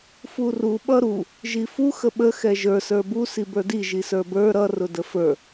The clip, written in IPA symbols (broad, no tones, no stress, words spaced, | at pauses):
furu ɓʌɾu | ʒifu xəɓə xɛʒə˞ sə˞bu sibə˞di ʒisə˞bə˞ ɾʌ rʊdəfə˞